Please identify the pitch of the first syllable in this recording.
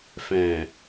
low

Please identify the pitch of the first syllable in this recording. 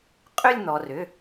falling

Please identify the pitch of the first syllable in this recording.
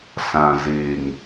low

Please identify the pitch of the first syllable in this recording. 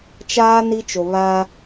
high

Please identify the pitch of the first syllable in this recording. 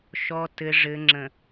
low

